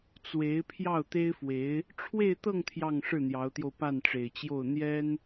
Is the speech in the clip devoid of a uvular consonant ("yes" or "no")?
yes